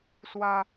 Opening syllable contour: high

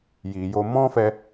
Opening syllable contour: low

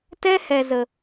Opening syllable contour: high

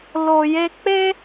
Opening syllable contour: low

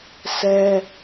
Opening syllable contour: high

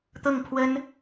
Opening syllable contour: falling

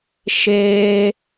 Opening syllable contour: high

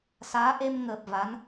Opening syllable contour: rising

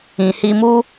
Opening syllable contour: low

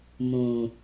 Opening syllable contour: low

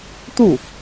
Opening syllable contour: falling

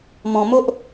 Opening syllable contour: low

